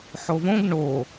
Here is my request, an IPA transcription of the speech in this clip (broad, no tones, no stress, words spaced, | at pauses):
ħovõɡ ɳo